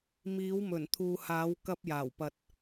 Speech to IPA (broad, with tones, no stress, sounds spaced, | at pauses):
m iː˨˥ w m ɵ˨˩ n t̪ʰ uː˨ h aː˨˥ w k ɐ˧ p̚ j aː˨˩ w p ɐ˨ t̚